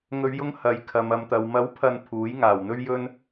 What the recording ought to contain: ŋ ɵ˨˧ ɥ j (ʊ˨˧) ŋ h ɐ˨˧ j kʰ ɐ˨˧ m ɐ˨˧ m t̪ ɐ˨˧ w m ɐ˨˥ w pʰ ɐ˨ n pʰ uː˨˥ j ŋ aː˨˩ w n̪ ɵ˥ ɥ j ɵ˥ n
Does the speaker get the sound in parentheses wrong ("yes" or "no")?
yes